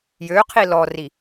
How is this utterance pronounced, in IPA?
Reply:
j ø qʰ i l ɔ r i

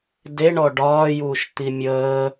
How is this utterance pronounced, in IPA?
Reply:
d e ɳ ɔ ɖ ɒː j uː ʃ t̪ i mʲ əː

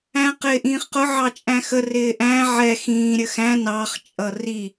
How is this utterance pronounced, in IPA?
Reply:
æ̃ q ɪː ʔ ĩː χ q ʊ ʕ ɑ t͡ʃʼ æ̃ x ə r ɪː ʔ æ̃ ʕ ɛ x ĩː ɾʲ ə x æ̃ n ɑ χ t͡ʃʼ ʌ r i

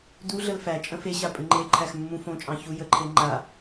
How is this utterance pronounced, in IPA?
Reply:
d u ɮ ə l f æ t͡ʃʼ ə̃ f e ɕ a pʼ ɨ ŋ͡ǃ e ǃʰ æ x mː ũ f õ t͡ʃʼ ɑ̃ ç u j ə ǃʰ e ŋ͡ǃ a

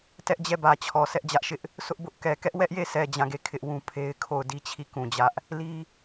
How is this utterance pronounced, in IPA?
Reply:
t ɛ˦ ʔ d͡ʑ ɛ˦˨ b ä˨ t͡ɕʰ ɔ˨ s ɛ˦ ʔ d͡ʑ ä˦ ʔ ʃ ɪ˦ ʔ | s ʊ˦ ʔ b ʊ˦ ʔ k ɛ˨ k ɛ˦ ʔ w ɛ˦ ʔ j e˦˨ s ɛ˨ d͡ʑ ã˦˨ ɡ e˦˨ kʰ ɪ˦ ʔ w ũ˦ pʰ e˦ ɪ̯ kʰ o˦˨ ʊ̯ d i˦ t͡ɕʰ i˦˨ k ũ˨ d͡ʑ ä˦ ʔ | l i˦

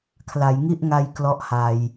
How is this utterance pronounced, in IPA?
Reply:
kʰ l a˩˦ j ŋ i˥˩ ʔ ŋ a˧ j k l ɔ˦˥ ʔ h a˨˩ j

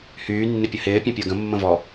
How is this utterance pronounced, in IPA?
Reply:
h yː nː ɪ pʲ ə h ɪː pʲ ã pʲ əː ɡ ə̃ mː ə̃ v ɔ

